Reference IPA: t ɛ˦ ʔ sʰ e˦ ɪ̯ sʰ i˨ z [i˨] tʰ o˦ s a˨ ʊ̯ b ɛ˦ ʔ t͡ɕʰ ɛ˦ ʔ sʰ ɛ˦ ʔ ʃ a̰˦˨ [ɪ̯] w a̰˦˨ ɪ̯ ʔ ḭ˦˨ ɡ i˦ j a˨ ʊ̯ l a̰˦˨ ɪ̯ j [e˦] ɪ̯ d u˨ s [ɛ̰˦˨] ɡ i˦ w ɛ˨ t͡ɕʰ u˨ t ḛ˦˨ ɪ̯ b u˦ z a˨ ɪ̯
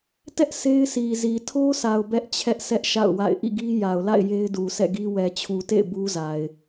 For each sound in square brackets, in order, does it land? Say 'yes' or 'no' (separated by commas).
yes, no, yes, yes